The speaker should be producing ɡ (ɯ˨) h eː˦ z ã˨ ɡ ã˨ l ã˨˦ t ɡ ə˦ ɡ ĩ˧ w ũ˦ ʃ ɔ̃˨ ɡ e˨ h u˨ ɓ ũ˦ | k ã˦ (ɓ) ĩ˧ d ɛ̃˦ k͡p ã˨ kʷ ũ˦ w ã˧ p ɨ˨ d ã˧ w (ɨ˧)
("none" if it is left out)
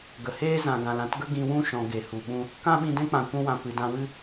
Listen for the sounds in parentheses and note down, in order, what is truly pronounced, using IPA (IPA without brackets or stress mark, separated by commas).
ə˨, ɓ, ɨ˦